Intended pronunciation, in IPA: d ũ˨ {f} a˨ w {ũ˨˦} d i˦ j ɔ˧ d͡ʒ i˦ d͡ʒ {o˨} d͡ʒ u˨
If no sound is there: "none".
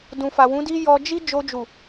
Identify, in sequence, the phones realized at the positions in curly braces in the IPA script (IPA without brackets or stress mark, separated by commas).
f, ũ˨˦, o˧